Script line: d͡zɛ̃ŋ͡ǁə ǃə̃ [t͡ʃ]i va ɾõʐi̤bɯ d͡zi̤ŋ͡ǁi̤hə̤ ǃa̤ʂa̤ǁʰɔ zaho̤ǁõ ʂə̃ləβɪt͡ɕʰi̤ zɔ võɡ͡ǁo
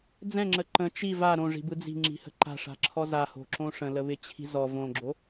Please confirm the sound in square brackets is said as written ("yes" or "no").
yes